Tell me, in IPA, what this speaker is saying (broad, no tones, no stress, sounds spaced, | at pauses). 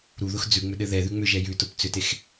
ɾ u ð ʊ x d͡z ʉ ŋ͡m ʏ ɗ ɘ ð ɛ ð ʉ ŋ͡m ʏ ʒ ɛ j ʉ t ʊ p t͡s ʏ t e x